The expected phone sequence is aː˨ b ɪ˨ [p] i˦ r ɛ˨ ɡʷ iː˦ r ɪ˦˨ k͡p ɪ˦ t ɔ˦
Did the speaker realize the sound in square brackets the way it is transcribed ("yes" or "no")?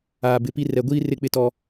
yes